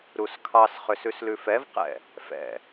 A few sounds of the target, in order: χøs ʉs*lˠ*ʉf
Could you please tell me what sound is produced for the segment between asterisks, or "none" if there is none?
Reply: l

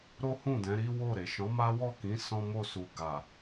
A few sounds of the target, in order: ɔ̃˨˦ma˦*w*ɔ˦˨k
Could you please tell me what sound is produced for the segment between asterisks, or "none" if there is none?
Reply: w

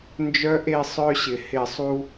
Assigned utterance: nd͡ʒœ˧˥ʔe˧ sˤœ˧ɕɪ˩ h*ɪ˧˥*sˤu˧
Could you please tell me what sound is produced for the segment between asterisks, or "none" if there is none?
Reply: ɪ˧˩˧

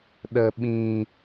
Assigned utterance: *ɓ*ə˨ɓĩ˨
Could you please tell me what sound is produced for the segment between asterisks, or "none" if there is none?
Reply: ɗ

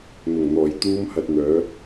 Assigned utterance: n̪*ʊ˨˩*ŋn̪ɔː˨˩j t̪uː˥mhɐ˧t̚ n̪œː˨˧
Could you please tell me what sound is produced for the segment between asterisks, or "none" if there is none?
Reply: ʊ˨˩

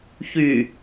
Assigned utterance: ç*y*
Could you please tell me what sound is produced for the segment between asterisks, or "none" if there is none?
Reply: y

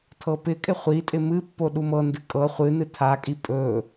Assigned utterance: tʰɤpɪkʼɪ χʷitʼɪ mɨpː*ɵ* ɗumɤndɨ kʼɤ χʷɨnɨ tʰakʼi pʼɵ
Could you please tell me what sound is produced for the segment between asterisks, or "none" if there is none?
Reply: o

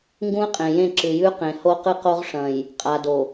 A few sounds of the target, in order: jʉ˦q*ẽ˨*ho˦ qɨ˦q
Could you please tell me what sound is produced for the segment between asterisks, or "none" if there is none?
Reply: ẽ˨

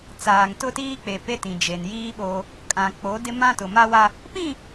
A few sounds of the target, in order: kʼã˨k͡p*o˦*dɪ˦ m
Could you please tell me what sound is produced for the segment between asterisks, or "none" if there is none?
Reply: o˨˦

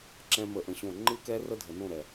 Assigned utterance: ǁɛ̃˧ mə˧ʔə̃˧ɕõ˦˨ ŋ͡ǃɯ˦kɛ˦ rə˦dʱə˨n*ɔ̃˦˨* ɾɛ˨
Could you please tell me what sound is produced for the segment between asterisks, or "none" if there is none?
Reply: õ˦˨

